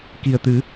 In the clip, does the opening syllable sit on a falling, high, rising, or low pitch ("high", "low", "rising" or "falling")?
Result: low